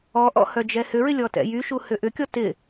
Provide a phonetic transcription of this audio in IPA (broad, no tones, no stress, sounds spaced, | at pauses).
ɔ ʔ ɔ̰ h œ d͡ʒ ɛ h ʏ ɹ ɪ lʲ ɔ t ɛ̰ j y ʃ u h ʏ ʔ ʏ kʲ ɔ t ɪ